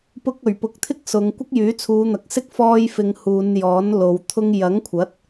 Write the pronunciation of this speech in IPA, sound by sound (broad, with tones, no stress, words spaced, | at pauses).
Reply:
pʊ˧k̚ɵ˨˩ɥpʊ˨k̚t̪ʰɪ˥k̚ sʊ˨˧ŋ kʷɪ˥k̚jyː˨˥t͡sʰuː˨˧n̪ɐ˨k̚ sɪ˥k̚fɔː˧jfɪ˨ŋ huː˨˧njɔː˨˥nlo˨w t̪ʰʊ˧ŋ jɐ˨˥ŋkʷʰɐ˨˥t̚